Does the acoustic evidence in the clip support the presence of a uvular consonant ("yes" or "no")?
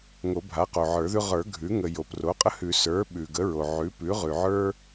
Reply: yes